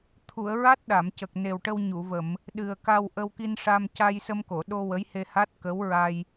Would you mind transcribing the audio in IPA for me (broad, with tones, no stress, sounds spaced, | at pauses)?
t̪ʰ u˨˩˨ ə̯ ɹ a˦˥ t̚ ɗ a˨˩˨ m c ə˨˩ k̚ n e˨˩ w ʈ ə˧ w ɲ u˨˩˨ v ə˨˩˨ m | ɗ ɨ˨˩ ə̯ k a˧ w ʔ ə˧ w k i˧ n ʂ a˧ m c a˧ j s ə˧ m k o˨˩˨ ɗ o˧ w ə˧˥ j h e˧ h a˦˥ t̚ k ə˧˥ w ɹ a˧ j